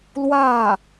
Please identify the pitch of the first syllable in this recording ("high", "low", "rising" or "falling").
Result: falling